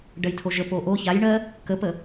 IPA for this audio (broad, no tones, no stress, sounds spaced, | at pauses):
ɖ ɜ j tʰ o ʒ ə p o ʔ o ç a j ɳ ɜ | k ə p ə